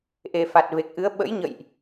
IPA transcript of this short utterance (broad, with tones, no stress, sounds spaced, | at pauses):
ʔ e˨˩ f a˨˩ t̚ v e˨˩ k̚ ʔ ɨ˨˦ ə̯ ɓ ə̰˧˥ j ɲ ə̰˧˨ j ʔ